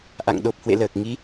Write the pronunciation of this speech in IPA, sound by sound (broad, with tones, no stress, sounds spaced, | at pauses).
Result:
ʔ a̰˧˨ ŋ ɗ o˨˩ p̚ h w ḛ˧˨ l əː˨˩ k̚ ŋ i˨˦